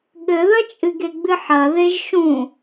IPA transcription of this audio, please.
ɠ ɘ ð ɐ t͡ʃʼ ɨ ɡ e ɡ͡b ɨ ħ ɐ ð e ʒ ʃ ũ

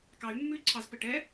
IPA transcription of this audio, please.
k ɑ y̯ mː ʉ y̯ ǀʰ ɑ z p ə ʈ ɛ

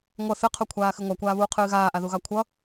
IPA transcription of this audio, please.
ŋʷ ʌ θ ɨ qʰ o kʷʰ aː x ɨ ŋʷ ɑ kʷ aː β uː qʰ ɨː ɣ aː ʔ a ð u ɣ ɑ kʷʰ ʌ

